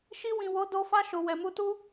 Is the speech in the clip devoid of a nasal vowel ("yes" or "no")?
no